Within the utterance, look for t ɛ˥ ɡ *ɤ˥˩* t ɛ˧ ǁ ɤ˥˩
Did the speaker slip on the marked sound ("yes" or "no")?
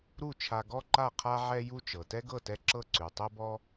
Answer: no